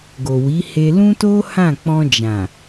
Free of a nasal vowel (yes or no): no